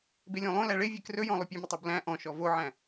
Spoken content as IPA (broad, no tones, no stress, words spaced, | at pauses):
belʲõlˠõ læɭe vʲekrɵjɔ̃ lˠupʲemʲotˤɔ blæ̃ ʔɔ̃ʃɔ voʕæ̃